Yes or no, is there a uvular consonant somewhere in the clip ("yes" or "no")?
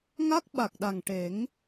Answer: no